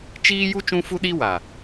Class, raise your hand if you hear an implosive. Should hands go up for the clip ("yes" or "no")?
yes